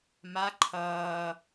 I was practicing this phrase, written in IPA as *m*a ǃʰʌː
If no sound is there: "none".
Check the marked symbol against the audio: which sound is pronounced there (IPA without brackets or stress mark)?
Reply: m